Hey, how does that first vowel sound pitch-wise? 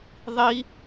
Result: high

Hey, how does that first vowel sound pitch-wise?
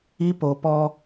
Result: high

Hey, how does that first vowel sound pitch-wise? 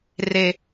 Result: low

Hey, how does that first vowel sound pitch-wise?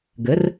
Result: rising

